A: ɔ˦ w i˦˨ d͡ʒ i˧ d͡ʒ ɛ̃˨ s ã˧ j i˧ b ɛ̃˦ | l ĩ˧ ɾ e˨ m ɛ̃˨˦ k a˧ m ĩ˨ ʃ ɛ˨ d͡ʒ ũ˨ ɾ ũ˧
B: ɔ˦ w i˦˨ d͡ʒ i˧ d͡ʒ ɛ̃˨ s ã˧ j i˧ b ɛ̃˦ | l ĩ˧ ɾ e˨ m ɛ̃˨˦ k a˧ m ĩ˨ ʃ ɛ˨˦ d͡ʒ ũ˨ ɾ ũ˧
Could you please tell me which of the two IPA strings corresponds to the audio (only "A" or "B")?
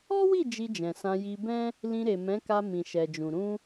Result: A